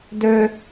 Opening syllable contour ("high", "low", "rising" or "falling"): high